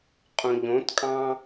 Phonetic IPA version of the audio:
qʼ ũ ʎ õ t kʼ ɑ̃

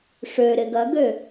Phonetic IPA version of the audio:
ʂ ø ɾ ɪ ɡ ɐ ɡ ø

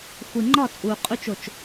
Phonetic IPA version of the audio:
xʷ i˩ ŋ͡ǃ ɒ˧˩ t͡sʼ uː˩ qʼ u˨˦ t͡ʃ o˧˩ t͡ʃ

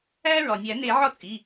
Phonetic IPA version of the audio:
æː˦ ɹ ɒ˩ nʲ æ˨˩˦ n e˨˩˦ ʕ ɒ˥˩ t͡sʼ i˩˧˩

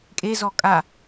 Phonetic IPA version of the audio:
kʼ e z ɔ kʼ a

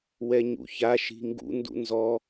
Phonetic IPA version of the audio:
w ɛ ɲ ṵ ç a ʃ i̤ ŋ ɡ ṵ n d ṵ n z ɔ

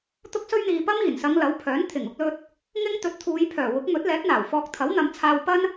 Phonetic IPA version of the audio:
t̪ ʊ˥ k̚ s ɵ˥ ɥ n̪ iː˧ p ɐ˥ m iː˨˩ n s ɐ˨˧ ŋ l ɐ˨˥ w pʰ œː˨˥ n t̪ʰ ɪ˨˩ ŋ ʊ˧ k̚ l ɵ˧ t̚ | ŋ ɪ˥ ŋ t̪ ɵ˨˥ t̚ t̪ʰ uː˨˧ j pʰ œː˨˩ w ʊ˨˥ k̚ m ɵ˨˥ t̚ l ɛː˨˥ t̚ n̪ aː˨˩ w f ɔː˧ k̚ t̪ʰ ɐ˨˥ w n̪ ɐ˨˧ m t͡sʰ aː˧ w p ɐ˥ n

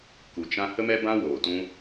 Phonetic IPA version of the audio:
k u˨ t͡ʃ ã˦ h ə˦ m ɛ˦ b ã˦ w oː˨ t ũ˦

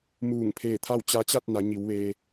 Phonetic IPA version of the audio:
m uː˧˩ ŋ pʰ eː˧˩ t̪ʰ a˥˨ w t͡ɕ a˧˥ t͡ɕ a˥˨ t̚ n a˩˧ ɲ i˩˧ w ʋ eː˧

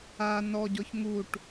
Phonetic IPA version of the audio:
a n ɔ ɟ ɔ ç ŋ u ʈ

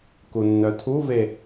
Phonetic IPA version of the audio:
k u nː œ tʰ u v e

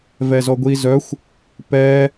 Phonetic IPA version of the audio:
v ɛ z ɔ ɡʷ i z œ xʷ | p ɛ

